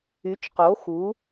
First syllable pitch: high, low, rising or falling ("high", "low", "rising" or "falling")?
rising